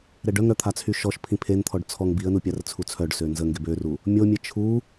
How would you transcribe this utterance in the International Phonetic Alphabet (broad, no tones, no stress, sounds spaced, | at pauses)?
ɾ ɛ ɖ œ ŋ ɾ œ t̪ʰ a t͡sʰ y ʃ ɔ ʃ pʰ ĩ pʰ e n t̪ʰ ɔ ɖ t͡sʰ ɔ ŋ b i ə̯ n u pʲ a r t͡sʰ u t͡sʰ œ ɖ s ø n z ə ŋ ɡ e b ø r u | mʲ o mʲ e t͡ʃʰ u